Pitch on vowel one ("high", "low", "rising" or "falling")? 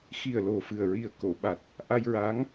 low